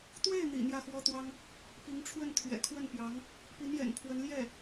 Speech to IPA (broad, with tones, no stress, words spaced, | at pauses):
t̪we˥˩ɪ̯n̪ḭ˨˩ n̪jä˥˩xwɔ˥t̪wɑ˥ŋ | pi˧˥ŋʈ͡ʂʰwə˥˩n t̪ʰɥɛ̰˨˩kʰwə˥˩npjɑ˧˥ŋ | pi˧˥njɛ̰˨˩npʰwə˧˥n ljɛ˥˩